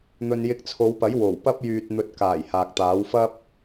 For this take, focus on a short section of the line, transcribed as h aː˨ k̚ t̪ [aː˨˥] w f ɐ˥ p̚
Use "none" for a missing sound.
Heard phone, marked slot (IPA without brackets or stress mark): aː˨˥